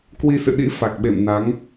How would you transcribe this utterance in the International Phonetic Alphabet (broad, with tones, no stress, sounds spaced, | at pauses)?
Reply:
k w i˧ s ɨ̰˧˨ ɗ ḭ˧˥ f a˨˩ k̚ ɓ ḛ˧˨ m n a˨˦ ŋ